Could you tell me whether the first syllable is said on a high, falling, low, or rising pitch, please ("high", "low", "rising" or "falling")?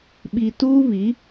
low